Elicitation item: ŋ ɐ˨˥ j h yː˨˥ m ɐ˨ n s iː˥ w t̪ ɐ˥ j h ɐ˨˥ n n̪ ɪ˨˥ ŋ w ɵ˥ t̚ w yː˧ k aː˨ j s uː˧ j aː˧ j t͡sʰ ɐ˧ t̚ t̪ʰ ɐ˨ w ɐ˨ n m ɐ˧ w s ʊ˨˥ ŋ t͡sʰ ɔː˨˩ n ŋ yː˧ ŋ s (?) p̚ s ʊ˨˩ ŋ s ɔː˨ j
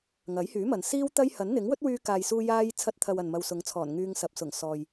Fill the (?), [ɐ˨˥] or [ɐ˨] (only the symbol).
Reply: ɐ˨